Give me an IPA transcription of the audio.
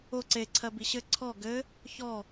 o ǀ e ǀʰ ɜ b i ɕ ɘ ǀʰ ɔ ɡ ɘ | ç ɔ

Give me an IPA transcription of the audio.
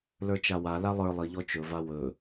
l ə˞ t͡ʃ a w a l a lˠ ə˞ lˠ i ʎ ɔ t͡ʃ ɵ v a w ɵ

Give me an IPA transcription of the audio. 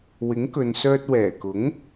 w ɪ˨˥ ŋ k ɵ˨ n s œː˧ t̚ w ɛː˨˩ k ʊ˨˥ ŋ

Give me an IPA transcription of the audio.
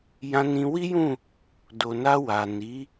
j ã˧ n ĩ˧ w i˦ j ũ˦˨ | d o˨ n a˧ w a˨ n i˨˦

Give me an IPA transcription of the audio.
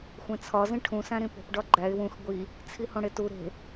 xʷ ẽ t͡sʰ ɒ z ĩ ʈʰ ũ s æ̃ ɾ ĩ p o̤ p ɖ ɒ ɡ͡ǃ æ ɪ̯ w ũ x ɡʷ i | t͡sʰ i h õ ɽ e t u ɾ e̤

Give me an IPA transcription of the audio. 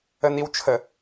ə n i w t͡ʃʰ ə

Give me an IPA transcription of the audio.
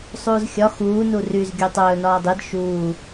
sˤ uː z xʲ ɒ x uː n u r y z ɡʲ ɵː tˤ ɵː n ɒː dˤ i d ʃ uː

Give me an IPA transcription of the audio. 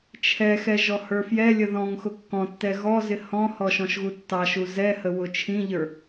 t͡ʃʰ ɛ x ɛ ʒ ɔ h ə˞ f j ɛ lʲ ə ð ɔ̃ ŋ x ʊ kː ɔ̃ tː ɛ ɣ ɔ z ɪ h ɔ̃ h ɔ ʃ ɔ̃ ʃ ɣ u tː ɑ ʃ u z ɛ h ə w ʊ t͡ʃʰ ĩ ʎ ə˞

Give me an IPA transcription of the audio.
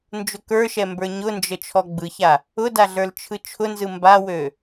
n d͡ʒ ʊ k ə˞ ʃ ɛ m b ə˞ ɲ ʊ n d͡ʒ ə t͡ʃʰ ɔ ɡ͡b ɯ ç a | ʊ d a ɮ ə˞ l t͡ʃʰ ɯ t͡ʃʰ ʊ n z ɯ m b a w ø

